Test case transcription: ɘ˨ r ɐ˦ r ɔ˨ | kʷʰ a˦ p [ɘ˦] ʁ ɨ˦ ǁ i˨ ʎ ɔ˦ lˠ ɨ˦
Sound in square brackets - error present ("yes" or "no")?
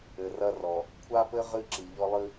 no